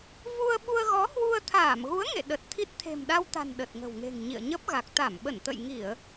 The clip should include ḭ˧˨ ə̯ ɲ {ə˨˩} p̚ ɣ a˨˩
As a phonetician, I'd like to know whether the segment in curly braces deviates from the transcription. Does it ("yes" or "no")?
yes